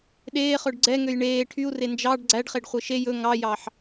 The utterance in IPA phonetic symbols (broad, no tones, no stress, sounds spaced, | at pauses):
ɗ eː χ ɵ ɖ ɡ͡ǀ ɛ ŋ ø j ɳ eː ʈʰ y u̯ r e n d͡ʒ ɑ ɖ ɡ͡ǀ æ ɖ χ e ɖ χʷ e ʃ e j ɵ ŋ ɑ j ɑ ħ